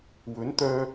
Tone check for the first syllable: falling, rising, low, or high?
rising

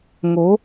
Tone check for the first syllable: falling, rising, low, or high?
rising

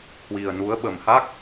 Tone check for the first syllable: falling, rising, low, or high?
low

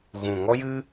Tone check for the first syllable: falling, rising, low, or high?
low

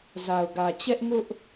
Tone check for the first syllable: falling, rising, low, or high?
low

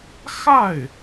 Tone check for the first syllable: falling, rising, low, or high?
falling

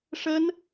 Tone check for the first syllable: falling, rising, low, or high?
high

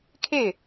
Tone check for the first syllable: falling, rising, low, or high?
falling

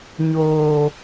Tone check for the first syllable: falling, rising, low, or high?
low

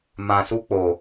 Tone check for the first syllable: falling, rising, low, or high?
low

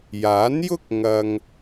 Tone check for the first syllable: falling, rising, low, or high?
rising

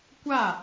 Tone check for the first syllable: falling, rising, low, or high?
falling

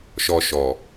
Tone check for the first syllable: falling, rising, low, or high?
low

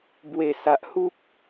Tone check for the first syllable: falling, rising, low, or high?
low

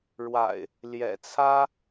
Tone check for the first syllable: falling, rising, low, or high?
low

